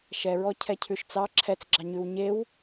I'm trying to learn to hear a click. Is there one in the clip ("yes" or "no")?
yes